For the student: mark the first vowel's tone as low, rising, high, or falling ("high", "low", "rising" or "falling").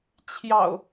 low